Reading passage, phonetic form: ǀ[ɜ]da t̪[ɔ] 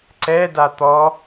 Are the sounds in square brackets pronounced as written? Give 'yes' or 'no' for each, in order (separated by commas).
no, yes